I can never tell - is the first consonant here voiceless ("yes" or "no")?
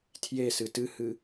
yes